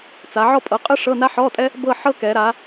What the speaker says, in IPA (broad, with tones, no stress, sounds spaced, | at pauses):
t͡s a˨˦ ʕ ɔ˥˧ pʼ ɤ˨˦ qʼ ɯ˥ ʂ ɤ˧˥˧ n a˥ ħ ɔ˧˥˧ tʼ ɛ˥ | b ɤ˥˧ ħ ɤ˥ k ɛ˨˦ ɾ a˨˦